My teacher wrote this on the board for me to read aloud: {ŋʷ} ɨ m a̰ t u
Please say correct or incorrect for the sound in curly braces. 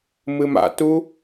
incorrect